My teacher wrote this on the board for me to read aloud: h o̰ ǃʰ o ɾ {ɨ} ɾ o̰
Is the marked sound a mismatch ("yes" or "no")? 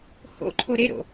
yes